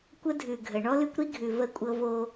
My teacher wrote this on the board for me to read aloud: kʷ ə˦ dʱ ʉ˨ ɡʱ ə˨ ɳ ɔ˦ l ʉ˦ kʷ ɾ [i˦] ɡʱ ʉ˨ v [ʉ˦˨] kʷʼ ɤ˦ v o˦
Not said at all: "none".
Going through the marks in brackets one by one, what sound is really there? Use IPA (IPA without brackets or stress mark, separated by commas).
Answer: i˦, ə˦˨